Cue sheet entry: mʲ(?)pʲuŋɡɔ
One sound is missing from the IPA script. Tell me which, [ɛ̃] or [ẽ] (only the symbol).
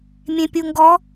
ẽ